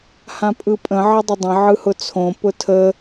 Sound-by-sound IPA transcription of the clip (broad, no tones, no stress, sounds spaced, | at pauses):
h ã pʼ ɯ pʼ ə̃ ʕ ə dˤ ə dˤ ə̃ ʕ ɯ h ʊ t͡sʰ õ p ʊ tʰ ə